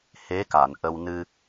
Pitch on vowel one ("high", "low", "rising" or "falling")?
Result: rising